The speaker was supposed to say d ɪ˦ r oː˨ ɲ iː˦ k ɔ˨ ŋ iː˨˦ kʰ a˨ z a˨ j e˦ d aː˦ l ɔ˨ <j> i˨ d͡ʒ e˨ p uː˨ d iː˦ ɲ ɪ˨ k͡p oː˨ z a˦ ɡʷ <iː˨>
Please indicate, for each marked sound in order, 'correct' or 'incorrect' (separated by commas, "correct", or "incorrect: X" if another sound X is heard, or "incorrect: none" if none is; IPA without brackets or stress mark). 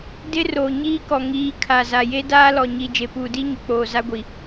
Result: incorrect: ɲ, incorrect: i˨